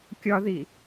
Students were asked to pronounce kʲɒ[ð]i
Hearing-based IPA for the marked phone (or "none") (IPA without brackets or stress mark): ð